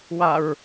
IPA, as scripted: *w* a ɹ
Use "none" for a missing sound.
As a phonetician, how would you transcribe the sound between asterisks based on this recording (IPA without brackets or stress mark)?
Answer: w